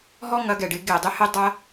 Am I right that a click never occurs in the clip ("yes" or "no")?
yes